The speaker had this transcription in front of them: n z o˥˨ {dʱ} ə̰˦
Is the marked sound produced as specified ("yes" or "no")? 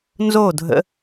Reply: yes